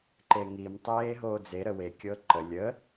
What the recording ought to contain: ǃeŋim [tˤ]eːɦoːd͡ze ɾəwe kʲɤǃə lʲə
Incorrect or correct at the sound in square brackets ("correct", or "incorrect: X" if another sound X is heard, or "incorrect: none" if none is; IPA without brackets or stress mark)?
correct